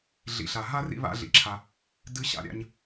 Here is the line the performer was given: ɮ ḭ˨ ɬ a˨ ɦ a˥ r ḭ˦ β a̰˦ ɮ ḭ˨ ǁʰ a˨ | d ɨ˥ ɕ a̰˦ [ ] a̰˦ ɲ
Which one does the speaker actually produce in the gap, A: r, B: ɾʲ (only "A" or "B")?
B